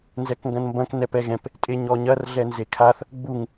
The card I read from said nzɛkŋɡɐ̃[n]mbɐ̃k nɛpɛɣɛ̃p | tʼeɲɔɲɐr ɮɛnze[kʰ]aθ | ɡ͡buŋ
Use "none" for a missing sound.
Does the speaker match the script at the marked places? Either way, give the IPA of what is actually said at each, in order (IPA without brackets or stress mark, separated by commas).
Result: n, kʰ